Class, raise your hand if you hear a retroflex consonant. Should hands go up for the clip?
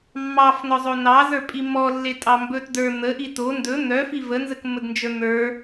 no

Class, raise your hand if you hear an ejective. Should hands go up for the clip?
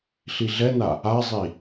no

